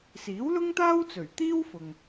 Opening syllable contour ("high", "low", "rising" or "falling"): rising